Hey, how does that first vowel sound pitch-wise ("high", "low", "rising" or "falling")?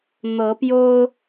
rising